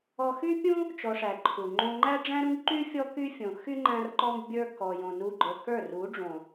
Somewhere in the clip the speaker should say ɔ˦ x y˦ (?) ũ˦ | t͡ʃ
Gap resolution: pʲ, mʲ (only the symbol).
pʲ